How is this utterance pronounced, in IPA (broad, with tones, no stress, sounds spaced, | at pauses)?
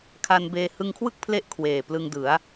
kʰ a˧ n b eː˧ h ɯ˧ ŋ kʰ w ɯ˥˩ k̚ pʰ l e˦˥ ʔ kʰ w eː˨˩ p l ɯ˧ ŋ d ɯ˩˦ a̯